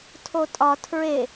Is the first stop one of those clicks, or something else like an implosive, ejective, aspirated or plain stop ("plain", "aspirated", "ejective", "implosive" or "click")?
aspirated